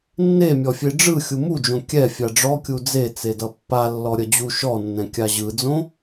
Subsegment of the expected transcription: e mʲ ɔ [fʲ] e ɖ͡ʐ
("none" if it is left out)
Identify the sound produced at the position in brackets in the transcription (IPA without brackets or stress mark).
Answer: fʲ